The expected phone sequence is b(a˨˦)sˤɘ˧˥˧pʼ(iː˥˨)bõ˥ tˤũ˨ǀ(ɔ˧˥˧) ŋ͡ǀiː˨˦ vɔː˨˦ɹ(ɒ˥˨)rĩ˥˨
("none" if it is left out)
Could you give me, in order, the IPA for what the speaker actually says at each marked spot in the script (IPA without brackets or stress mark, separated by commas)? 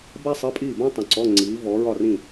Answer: a˥, iː˥˨, ɔ˧˥˧, ɒ˥˨